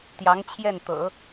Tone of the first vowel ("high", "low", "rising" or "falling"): rising